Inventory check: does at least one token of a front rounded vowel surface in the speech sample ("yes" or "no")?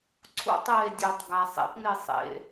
yes